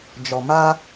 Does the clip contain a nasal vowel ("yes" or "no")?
no